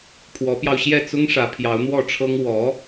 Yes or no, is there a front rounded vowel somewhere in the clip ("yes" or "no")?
no